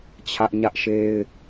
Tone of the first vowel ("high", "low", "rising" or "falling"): high